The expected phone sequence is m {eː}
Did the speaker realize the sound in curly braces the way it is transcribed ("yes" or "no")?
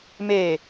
yes